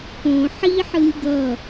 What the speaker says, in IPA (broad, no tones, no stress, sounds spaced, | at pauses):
p õ ħ i ħ ɯ lʲ ɡ ʌ